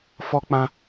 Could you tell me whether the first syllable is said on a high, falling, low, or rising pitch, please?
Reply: high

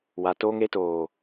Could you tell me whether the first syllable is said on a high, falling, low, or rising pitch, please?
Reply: low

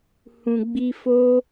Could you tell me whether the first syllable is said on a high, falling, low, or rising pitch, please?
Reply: low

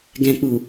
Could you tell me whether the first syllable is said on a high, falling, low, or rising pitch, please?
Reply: low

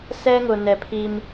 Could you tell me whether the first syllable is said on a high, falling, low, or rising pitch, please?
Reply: high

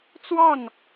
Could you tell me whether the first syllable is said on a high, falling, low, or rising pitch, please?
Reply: falling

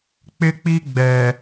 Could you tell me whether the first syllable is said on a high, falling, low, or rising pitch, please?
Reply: high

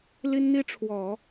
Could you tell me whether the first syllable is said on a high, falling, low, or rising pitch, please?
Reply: high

